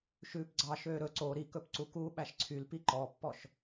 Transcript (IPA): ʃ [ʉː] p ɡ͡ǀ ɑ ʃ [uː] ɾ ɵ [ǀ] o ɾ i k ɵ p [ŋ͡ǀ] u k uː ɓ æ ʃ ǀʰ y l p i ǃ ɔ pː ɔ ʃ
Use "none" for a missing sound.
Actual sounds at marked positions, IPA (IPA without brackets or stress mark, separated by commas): ʉː, øː, ǀ, ǀ